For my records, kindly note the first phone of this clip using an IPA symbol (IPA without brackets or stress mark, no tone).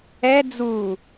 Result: ɛ